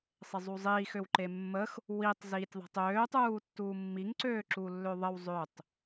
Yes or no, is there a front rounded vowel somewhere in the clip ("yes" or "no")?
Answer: yes